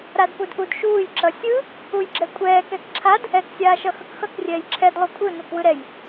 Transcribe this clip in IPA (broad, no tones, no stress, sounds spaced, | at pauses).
ɾ a d p u d ʔ u d ʃ uː j ǁ ʌ sʲ ɯ | u j ɡ͡ǁ ɛ kʷʼ ɛː k ɛ k ǁʰ a d | ɛ k sʲ aː ʃ ʌ x ʌ k x ʌ k rʲ ɛː j ǁʰ ɛ d lˠ u kʷʼ ɯ n u k w ɯ ɾ ɛ j